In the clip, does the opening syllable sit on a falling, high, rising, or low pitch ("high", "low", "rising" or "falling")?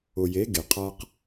low